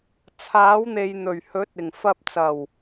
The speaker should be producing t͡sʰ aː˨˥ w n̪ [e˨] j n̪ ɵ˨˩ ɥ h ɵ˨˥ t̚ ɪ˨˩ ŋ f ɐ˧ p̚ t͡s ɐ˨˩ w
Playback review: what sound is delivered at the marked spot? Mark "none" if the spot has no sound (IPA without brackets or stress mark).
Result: e˨